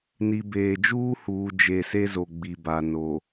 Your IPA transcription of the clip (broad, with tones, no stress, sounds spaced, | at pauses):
n i˨ b eː˨ d͡ʒ uː˦ h uː˨ d͡ʒ e˨ s e˦ z o˨ ɡ͡b i˨ b a˨ n o˨